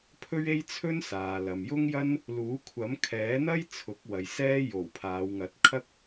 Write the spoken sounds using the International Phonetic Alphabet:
pʰɵ˥ɥe˥jt͡sʰɵ˥nsaː˨ lɐ˨mjʊ˥ŋjɐ˥n | luː˨˥kʷʰɐ˨˥mkʰɛː˨˥n̪ɐ˥j t͡sʰʊ˨˥k̚wɐ˨j sɛː˥ jo˨˩w pʰaː˨˧wŋɐ˨˥t̚kʰɐ˥k̚

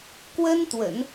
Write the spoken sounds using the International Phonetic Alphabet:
kwə˥nt̪wə̰˨˩˦n

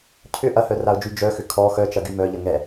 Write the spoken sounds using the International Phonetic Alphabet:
cʰʏ ʔɐhœraʊ̯d͡ʒy d͡ʒœxʏ kʰɔ xœt͡ʃɐɡy mœʎə ŋɛ

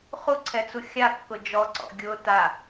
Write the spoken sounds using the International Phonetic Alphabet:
χuǀʰɛt͡su xʲakːʊ d͡ʒɔǀɔ̰ ɡʲʊ ta

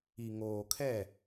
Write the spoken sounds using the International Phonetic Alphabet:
i˨ŋoː˨kʰɛ˦˨

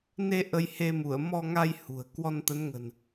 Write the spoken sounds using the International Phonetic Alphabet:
ne˧ ʔə˧jhe˧mu˧˩ə̯ mɔ˧ŋa˧j hṳ˨˩ə̯ kwɔ˧nt̪ə˨˦nŋə̤˨˩n

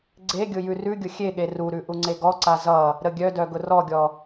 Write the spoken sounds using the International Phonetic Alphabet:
ɡ͡ǀeɡʲʊ jʉrʉɡʲʊ xʲeɠe ruɾʉ ʔuŋ͡ǀeɡɔǀa zʌ | ɾəɡʲœdœ ɡʊrɔɡʲɔ

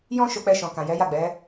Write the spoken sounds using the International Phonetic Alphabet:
jɔ̃˦ ʃo˧k͡pɛ˧ʃɔ̃˨ kã˨jɛ˨˦ja˦˨ ɡ͡bɛ˨˦

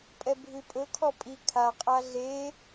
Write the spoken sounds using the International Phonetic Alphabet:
pʼɛbʱʉpʼɵkʰɔ pʼi kʰaqʼa ɮe

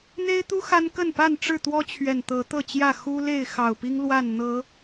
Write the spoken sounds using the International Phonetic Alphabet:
n̪e˦ɪ̯t̪u˦ xa˦nkə˥˨n pa˥˨nʈ͡ʂɻ̩˥˨t̪wɔ˦ t͡ɕʰɥɛ˨˩nt̪ɤ˨˦t̪ɤ˥˨t͡ɕjä˥˨ xu˦ le˥˨ɪ̯xɑ˨˩ʊ̯pi˦ŋ lwa˥˨n n̪ɤ˨˦

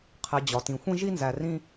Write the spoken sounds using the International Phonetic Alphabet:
qʰe˨d͡ʑɒ˩tĩ˩ xʷĩ˥ʒi˥nzæ˨ rĩ˦

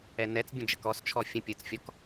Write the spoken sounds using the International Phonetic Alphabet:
ɛnɛt͡sbʲə̃ d͡ʒəkɔst͡ʃʰɔ fʲə̃ pʲɯt͡sfʲɔk

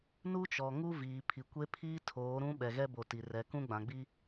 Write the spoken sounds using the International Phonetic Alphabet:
nu˦t͡ʃɔ˨ ŋu˦viː˨ pʰi˨kʷe˦pʰiː˦ tʰoː˨˦ɾũ˦ ɓɛ˨ɣɛ˦bo˨ ti˨rɛ˨kũ˦ ɡ͡bã˨ɡ͡bi˦

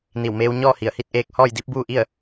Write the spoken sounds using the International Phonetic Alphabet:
ni˧˩wmeː˧w ɲɔː˥˨hi˧˩ə̯hi˥˨t̚ ʔeː˧k̚ hɔː˥˨jdi˧˥p̚buː˥˨ʔi˥˨ə̯

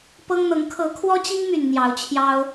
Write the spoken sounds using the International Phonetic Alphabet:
pɤ˦ŋn̪ɤ˨˦ŋ kʰɤ˨˦kʰwɔ˦t͡ɕi˦ŋmy˨˩n n̪jɑ˨˦ʊ̯t͡ɕʰjɑ˦ʊ̯

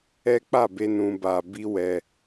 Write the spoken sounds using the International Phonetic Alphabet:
ɛ˦ k͡pa˦˨be˧ nũ˦ba˦ bi˦wɛ˧

